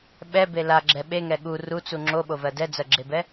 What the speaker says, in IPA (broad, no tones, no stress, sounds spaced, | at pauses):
ɓ ɛ b e l a ɡ͡ǁ ɛ ɓ e ŋ ɛ ɠ u r u t͡s u ŋ͡ǁ o ɓ o v ɜ d ɛ d͡z ɜ ɡ͡ǁ e b ɛ